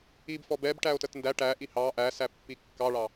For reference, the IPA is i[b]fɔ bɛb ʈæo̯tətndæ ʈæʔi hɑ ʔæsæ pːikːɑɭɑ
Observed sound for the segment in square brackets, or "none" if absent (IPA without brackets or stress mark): b